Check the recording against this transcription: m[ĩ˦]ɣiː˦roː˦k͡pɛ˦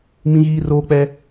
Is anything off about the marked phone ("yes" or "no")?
no